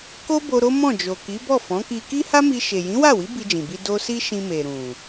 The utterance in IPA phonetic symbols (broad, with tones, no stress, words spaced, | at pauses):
ko˦bo˧ ɾo˦mɔ̃˦˨d͡ʒo˨ ki˨˦bɔ˦˨fɔ̃˨˦ki˧ ki˦ha˦mi˧ ʃe˨jĩ˨˦wa˦˨wi˨˦ bi˧d͡ʒĩ˨bi˧ do˦ si˦ ʃĩ˧me˨ ɾũ˨